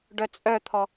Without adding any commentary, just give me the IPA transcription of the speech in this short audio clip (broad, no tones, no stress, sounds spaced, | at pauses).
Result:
ɖ œ t͡sʼ œ t̪ʰ ɔ